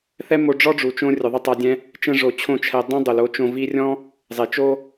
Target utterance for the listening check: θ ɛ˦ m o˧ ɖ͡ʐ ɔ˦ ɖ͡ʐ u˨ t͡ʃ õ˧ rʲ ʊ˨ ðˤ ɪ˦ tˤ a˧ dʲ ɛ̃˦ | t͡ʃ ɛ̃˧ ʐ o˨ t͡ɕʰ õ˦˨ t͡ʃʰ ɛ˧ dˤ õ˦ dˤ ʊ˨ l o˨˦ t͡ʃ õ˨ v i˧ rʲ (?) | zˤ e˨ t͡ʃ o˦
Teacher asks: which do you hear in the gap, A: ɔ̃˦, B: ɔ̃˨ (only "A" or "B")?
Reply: A